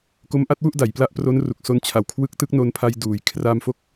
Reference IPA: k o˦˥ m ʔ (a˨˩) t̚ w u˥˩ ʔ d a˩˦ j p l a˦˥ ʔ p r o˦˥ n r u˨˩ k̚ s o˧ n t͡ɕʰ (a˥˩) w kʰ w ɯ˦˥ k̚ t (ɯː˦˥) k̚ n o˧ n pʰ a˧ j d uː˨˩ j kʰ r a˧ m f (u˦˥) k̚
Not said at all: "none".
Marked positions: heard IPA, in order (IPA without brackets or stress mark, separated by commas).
a˦˥, a˨˩, ɯ˦˥, o˦˥